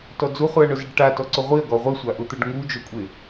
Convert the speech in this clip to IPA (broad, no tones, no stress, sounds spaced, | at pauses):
t ɔ d͡z u χ u ɐ̯ ɳ ʊ z ɪ ɖ ʈ a t ɔ ǀ ʊ ʁʷ i ɐ̯ ɡ ɔ ʁʷ e sʷ a ʔ ʊ t̪ o ɖ ŋ u d͡ʒ o kʷʼ e